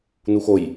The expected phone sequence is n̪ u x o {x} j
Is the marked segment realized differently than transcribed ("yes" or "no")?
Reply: yes